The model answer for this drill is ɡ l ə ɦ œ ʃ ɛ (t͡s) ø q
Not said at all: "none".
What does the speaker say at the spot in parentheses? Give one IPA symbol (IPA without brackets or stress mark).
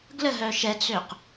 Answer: t͡s